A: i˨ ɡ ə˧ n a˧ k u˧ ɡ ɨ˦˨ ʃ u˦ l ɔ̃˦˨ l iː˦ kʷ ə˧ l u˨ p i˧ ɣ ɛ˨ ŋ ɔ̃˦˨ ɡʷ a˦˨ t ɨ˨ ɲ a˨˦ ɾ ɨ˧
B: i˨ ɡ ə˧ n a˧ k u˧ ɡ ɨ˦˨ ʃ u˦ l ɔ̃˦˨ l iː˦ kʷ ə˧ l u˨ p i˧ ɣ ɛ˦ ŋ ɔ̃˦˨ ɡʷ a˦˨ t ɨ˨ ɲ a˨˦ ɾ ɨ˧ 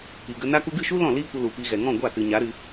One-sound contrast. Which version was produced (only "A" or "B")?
A